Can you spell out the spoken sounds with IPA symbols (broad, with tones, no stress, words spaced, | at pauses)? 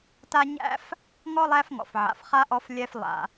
ta˥ ɲæ̰˥f | ŋɔ˥lˠæ˦fŋɔ̰˩f ʕa̰˩fχa˥ʔɔ˦f lʲɛ˦f lˠa̰˩